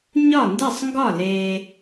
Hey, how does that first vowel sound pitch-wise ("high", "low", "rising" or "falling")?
falling